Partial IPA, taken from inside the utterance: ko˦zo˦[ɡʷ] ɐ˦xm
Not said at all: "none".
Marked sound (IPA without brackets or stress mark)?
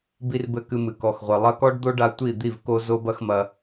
b